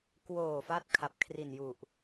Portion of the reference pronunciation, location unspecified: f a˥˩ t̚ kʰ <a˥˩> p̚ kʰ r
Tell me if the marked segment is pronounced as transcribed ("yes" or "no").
no